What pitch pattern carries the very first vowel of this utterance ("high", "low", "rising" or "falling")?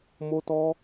high